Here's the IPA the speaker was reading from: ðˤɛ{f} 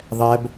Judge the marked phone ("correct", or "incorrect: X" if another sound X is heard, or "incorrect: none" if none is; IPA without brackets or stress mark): incorrect: b